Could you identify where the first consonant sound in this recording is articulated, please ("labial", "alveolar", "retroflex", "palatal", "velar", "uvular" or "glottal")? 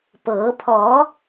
labial